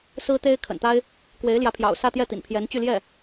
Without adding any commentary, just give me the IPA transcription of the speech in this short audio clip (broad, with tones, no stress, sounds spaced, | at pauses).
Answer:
s ɹ̩˥ t̪ e˥ ɪ̯ kʰ ə̰˨˩ n t̪ a˥ ɪ̯ | k w e˧˥ ɪ̯ l j ä˧˥ pʰ j ɑ̰˨˩ ʊ̯ s ä˥˧ t̪ j ɛ˥˩ t̪ ḭ˨˩ n pʰ j ɛ˧˥ n t͡ɕ y˥˧ l j ɛ˥˩